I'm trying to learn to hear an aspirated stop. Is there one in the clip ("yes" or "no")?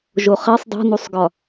no